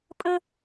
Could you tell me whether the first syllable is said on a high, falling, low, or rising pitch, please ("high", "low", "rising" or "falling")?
high